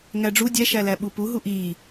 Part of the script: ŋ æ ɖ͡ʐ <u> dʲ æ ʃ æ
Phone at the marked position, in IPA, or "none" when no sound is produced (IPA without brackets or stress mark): u